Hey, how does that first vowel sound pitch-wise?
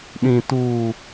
low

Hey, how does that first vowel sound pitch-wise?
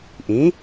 rising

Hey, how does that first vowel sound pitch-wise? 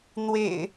low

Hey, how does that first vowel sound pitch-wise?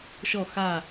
falling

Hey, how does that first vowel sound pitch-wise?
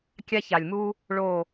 high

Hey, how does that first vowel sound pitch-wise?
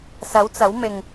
rising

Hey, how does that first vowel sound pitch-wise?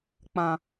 high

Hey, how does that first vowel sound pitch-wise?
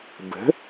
rising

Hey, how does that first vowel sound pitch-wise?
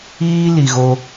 high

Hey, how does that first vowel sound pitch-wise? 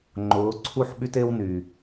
rising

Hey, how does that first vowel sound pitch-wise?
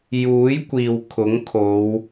rising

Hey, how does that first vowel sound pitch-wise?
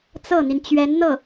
falling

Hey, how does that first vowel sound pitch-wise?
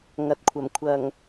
low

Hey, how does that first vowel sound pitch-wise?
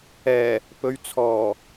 low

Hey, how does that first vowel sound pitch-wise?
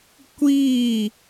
falling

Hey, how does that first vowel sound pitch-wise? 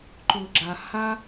low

